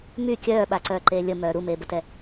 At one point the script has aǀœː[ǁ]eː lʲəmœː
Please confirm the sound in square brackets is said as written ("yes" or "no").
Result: no